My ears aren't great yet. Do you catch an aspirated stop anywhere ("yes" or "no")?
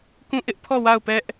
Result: yes